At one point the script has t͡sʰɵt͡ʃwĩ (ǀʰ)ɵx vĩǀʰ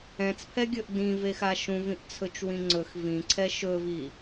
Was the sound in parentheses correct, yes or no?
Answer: no